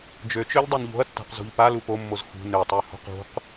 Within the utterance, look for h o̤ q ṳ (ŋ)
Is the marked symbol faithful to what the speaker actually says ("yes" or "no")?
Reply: no